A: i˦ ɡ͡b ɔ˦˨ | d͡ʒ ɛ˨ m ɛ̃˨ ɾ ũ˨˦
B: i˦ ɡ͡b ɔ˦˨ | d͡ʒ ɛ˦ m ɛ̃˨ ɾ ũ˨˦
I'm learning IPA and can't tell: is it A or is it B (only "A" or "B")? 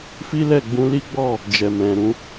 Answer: A